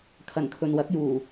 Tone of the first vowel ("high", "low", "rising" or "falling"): low